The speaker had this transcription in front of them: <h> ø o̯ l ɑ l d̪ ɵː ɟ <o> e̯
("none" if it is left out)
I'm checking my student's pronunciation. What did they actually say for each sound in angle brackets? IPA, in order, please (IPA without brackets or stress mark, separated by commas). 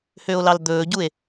h, u